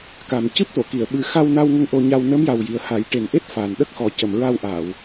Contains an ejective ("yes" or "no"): no